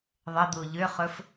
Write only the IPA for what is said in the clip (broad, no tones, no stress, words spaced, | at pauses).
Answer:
ðˤəd̪u ʎʏχɵf